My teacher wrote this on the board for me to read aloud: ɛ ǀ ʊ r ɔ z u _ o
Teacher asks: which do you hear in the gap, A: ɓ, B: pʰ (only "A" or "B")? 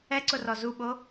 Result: A